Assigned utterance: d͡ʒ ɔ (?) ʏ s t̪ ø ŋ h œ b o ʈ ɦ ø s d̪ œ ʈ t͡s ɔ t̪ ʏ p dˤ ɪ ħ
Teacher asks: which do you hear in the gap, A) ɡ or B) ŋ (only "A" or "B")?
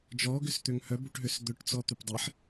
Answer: A